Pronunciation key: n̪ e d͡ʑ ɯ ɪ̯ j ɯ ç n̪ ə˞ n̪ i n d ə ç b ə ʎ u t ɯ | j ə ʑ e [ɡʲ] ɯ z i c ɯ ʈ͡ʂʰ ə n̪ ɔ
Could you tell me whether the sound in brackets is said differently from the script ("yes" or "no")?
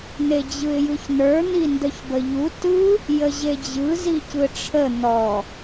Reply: yes